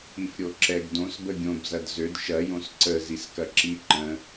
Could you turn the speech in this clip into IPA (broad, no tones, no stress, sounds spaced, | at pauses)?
i f ɾʲ o ǁ ɛ ɡ d õ s b ə ɡʲ õ b z ɐ d z ø d ʃ ɐ j õ s ǀ ə z i s k ɐ ǁ i ǃ ə̃